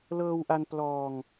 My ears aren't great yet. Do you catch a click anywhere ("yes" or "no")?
no